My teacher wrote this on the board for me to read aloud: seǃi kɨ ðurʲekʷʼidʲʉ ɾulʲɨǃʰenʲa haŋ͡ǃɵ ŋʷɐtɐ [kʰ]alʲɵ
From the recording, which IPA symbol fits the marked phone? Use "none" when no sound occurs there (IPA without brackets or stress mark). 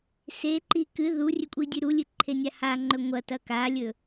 k